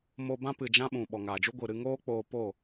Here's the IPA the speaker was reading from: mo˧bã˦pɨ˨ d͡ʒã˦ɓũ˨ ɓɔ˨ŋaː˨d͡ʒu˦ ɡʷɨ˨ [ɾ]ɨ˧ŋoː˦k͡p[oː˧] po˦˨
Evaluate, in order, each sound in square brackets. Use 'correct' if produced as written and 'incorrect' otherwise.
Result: correct, correct

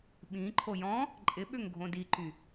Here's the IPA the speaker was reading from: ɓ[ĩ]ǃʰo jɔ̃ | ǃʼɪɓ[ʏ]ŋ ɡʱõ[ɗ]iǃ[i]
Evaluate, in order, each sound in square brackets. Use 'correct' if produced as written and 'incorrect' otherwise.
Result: correct, correct, incorrect: d, incorrect: y

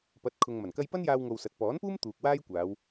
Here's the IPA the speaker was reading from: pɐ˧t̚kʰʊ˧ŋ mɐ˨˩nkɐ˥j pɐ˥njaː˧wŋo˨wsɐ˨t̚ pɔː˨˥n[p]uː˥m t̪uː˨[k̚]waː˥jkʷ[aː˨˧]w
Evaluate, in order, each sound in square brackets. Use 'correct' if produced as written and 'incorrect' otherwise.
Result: correct, correct, correct

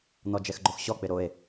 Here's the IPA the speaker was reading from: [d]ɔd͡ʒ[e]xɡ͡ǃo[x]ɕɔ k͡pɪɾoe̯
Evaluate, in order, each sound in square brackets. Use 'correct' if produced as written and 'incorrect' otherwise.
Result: incorrect: n̪, incorrect: ɛ, correct

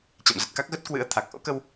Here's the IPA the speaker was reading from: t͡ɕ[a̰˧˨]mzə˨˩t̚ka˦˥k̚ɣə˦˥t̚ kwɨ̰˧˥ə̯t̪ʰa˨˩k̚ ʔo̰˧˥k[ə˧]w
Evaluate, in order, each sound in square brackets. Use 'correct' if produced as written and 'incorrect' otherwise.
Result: correct, correct

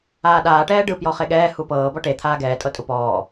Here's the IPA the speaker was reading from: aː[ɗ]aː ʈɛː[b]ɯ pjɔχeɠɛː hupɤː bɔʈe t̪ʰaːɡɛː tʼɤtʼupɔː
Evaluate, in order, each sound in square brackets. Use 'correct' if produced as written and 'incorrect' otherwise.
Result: correct, incorrect: ɖ

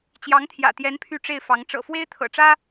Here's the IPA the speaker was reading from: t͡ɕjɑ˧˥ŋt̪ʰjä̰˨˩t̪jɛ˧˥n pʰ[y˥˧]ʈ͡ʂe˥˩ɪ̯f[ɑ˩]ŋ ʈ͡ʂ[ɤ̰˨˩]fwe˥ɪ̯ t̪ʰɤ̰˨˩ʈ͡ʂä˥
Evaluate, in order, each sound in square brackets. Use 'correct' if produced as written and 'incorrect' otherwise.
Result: correct, incorrect: ɑ˧˥, correct

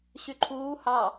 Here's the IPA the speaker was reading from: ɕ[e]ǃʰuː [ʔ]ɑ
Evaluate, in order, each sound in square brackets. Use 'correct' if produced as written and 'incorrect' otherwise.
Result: incorrect: y, incorrect: h

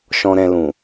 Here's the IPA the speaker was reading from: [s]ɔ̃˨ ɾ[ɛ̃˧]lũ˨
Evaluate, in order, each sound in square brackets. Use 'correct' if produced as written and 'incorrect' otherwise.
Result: incorrect: ʃ, correct

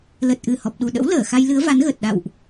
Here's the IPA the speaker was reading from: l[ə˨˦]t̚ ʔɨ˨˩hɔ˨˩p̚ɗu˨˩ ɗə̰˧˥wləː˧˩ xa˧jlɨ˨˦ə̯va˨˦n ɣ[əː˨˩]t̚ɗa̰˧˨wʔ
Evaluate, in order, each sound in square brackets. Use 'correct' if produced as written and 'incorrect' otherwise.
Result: incorrect: ə˨˩, correct

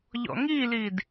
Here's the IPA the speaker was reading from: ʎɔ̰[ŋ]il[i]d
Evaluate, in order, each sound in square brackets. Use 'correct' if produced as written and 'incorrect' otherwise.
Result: correct, correct

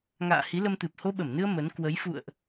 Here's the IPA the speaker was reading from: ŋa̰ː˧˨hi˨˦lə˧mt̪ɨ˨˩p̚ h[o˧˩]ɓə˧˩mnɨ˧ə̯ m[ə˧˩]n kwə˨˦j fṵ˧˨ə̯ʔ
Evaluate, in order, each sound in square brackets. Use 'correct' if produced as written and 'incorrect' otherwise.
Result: incorrect: o˧, incorrect: ə˨˦

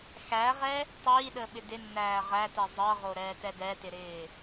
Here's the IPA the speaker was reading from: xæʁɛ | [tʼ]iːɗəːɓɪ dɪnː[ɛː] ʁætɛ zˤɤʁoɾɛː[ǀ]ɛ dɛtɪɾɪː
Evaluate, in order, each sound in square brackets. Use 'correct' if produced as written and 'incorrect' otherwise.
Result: incorrect: tˤ, incorrect: æː, incorrect: t

